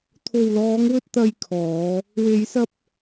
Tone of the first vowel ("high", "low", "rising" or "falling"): low